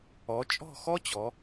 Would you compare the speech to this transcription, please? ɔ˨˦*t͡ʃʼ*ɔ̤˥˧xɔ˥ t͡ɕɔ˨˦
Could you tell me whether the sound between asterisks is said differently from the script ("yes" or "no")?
no